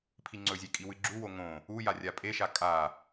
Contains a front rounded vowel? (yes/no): no